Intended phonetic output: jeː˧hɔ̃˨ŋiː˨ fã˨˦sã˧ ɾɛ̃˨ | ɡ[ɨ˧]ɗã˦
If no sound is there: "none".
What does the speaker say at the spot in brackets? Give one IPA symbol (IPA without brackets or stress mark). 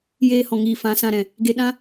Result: e˧